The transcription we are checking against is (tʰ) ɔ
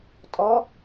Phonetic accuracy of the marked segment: incorrect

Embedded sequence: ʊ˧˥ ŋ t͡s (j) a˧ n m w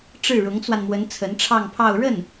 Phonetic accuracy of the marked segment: incorrect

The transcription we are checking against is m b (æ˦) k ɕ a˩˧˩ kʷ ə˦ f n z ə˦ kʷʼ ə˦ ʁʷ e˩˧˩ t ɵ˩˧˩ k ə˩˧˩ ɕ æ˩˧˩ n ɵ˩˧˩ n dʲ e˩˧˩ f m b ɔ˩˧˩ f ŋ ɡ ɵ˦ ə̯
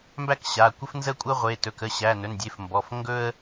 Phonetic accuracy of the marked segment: correct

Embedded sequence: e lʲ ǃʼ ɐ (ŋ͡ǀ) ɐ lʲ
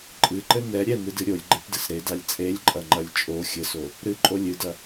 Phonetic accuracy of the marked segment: incorrect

